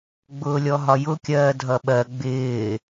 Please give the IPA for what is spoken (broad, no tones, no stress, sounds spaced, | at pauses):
ɡ͡b ʊː lʲ ɔ ɦ ɒ j ʊ kʲ ɜː dʱ ʌ ɓ ɜ ɡ͡b ɪː